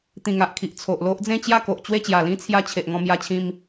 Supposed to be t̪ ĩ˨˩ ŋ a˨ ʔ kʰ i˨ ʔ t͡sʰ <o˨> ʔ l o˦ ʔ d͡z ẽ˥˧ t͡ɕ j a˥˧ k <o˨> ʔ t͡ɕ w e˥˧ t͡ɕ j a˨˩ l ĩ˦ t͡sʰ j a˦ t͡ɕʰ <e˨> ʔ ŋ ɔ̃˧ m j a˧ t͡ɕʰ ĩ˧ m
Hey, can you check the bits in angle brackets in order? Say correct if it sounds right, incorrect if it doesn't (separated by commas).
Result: correct, correct, correct